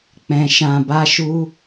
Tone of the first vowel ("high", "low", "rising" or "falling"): low